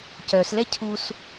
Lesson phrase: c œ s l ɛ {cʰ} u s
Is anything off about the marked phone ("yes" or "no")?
no